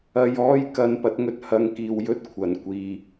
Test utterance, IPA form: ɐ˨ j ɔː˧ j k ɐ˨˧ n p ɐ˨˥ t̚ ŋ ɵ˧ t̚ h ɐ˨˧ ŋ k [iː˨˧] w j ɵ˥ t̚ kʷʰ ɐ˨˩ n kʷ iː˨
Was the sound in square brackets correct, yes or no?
no